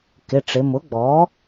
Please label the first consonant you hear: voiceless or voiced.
voiceless